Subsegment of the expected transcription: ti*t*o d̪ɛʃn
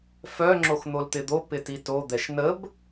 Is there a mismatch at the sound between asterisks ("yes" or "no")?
no